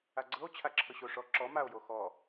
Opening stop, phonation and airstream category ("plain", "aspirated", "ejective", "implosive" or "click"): click